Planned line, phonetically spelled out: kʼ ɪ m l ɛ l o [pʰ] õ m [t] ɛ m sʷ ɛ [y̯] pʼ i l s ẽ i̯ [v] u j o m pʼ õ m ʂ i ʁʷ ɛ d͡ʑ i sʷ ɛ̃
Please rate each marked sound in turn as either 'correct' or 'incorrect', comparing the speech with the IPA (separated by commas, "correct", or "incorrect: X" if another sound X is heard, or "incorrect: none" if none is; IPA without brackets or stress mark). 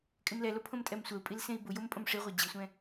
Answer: correct, incorrect: tʼ, incorrect: u̯, incorrect: b